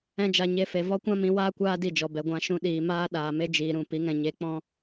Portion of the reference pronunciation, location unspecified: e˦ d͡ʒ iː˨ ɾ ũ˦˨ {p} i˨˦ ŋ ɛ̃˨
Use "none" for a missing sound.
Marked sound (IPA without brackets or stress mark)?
p